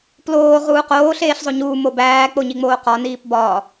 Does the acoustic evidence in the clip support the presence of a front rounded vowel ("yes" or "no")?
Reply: no